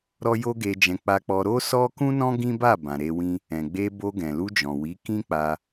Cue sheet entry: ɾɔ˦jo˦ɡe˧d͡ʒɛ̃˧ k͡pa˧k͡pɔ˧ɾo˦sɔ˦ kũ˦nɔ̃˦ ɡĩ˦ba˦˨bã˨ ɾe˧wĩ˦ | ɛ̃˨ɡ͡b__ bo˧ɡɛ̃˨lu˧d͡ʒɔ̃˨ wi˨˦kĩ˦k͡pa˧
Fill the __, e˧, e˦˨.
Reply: e˧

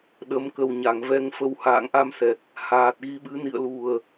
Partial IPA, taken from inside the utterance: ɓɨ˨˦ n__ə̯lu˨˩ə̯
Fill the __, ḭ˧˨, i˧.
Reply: ḭ˧˨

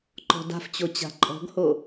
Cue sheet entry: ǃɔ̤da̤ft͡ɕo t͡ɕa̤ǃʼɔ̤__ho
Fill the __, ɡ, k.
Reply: ɡ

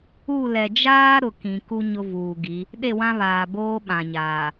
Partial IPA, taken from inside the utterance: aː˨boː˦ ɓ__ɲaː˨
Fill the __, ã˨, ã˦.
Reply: ã˨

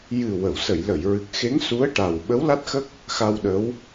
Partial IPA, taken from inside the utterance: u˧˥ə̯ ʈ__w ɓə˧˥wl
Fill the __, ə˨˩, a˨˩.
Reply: a˨˩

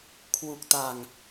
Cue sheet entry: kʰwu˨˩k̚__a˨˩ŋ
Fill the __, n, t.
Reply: t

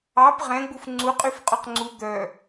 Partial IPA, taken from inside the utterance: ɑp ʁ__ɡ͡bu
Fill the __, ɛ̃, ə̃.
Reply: ɛ̃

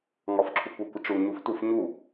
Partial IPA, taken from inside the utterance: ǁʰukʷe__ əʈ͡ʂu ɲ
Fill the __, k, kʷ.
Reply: kʷ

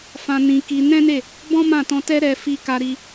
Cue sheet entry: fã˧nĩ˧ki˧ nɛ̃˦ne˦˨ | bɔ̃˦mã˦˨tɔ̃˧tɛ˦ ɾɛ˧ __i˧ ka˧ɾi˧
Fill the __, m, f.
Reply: f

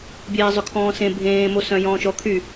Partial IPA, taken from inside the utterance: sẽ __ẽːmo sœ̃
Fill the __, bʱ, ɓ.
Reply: bʱ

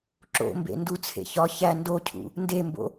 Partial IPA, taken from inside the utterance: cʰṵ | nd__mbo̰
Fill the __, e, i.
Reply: e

